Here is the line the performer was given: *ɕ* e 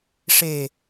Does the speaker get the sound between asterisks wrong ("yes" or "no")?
yes